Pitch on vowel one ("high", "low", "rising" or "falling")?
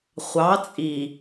rising